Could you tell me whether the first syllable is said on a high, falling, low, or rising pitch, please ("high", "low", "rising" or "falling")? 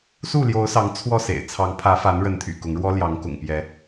falling